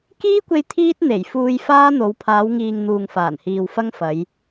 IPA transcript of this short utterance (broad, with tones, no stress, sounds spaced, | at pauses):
k iː˥ kʷ e˧ j t̪ʰ iː˥ t̚ n̪ e˨˩ j f uː˧ j f aː˥ n̪ o˨˧ w pʰ aː˨˧ w ŋ iː˨ ŋ n̪ uː˨ ŋ f aː˨˩ n h iː˨ w f ɐ˥ ŋ f ɐ˨˧ j